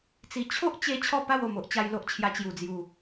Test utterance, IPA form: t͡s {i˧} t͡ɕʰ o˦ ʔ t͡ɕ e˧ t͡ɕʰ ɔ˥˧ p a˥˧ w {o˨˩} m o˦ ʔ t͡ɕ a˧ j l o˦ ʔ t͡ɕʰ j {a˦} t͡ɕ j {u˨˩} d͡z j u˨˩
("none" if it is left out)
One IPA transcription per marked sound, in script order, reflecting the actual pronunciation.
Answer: i˨˩, o˨˩, a˧, u˨˩

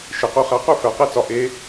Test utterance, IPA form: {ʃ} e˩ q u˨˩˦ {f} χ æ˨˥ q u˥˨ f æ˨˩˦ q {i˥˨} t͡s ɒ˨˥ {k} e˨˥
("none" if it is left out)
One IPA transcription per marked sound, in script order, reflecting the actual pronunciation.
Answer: ʃ, none, e˥˨, ʔ

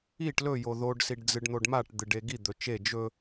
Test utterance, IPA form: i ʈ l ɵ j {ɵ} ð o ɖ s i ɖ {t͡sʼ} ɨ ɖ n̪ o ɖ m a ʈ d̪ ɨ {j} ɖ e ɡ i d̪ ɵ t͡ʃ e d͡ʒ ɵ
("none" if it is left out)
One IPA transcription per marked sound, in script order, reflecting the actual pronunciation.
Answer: o, d͡z, none

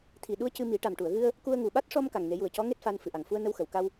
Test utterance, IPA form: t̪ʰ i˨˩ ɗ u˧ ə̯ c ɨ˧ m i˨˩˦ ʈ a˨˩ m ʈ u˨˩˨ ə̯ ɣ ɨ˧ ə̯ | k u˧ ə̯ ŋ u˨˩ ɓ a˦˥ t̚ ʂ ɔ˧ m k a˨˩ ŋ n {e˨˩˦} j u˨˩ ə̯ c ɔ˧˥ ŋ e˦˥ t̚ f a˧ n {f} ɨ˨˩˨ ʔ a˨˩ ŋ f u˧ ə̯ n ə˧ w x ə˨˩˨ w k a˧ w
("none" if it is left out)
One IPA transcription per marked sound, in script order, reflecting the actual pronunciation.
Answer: e˨˩˦, f

